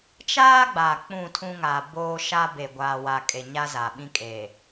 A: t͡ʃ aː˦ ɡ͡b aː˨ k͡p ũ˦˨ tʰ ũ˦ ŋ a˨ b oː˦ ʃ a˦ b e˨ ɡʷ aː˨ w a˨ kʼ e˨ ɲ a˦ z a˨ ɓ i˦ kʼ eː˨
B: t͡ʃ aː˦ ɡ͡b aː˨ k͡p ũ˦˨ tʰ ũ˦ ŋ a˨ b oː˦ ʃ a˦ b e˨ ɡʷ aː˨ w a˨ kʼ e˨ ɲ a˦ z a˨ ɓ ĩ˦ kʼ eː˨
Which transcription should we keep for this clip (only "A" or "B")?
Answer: B